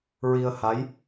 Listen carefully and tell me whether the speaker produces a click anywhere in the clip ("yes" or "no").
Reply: no